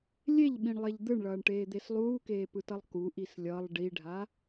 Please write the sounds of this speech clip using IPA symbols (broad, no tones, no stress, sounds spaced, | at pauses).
lʲ e ʎ ɓ ĩ ɳ lˠ e ʎ d̪ ɯ ɳ ɭ ʌː ɳ ʈ eː d̪ e s lˠ uː k eː p ɯ t ʌ lˠ k u ʔ i s lʲ ʌ lˠ ɖ i ɖʱ a